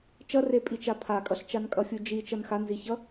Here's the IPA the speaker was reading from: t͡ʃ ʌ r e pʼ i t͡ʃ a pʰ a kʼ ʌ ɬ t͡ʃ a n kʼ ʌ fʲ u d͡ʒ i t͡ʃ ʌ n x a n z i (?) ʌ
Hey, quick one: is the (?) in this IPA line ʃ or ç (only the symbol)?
ç